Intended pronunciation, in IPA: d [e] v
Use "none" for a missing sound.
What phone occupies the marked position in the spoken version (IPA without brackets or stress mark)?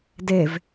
e